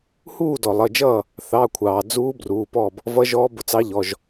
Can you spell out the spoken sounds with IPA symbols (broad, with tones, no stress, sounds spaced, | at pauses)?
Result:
h uː˥˨ d ɔ˩ lˠ ʌ˩˧˩ d͡ʒ ʌː˥˨ | θ ɑ˩˧˩ kʷʰ ɑː˩ d͡z uː˧˥ b r uː˩˧˩ p ɔː˥˨ b | v ʌ˧˥ ʒ ɔː˧˥ b ʊ˩˧˩ t͡s ɑ˧˥ ʎ ɔ˩˧˩ ʒ